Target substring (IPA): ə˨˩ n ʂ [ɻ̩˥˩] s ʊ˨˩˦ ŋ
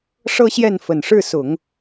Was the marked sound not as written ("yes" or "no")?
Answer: no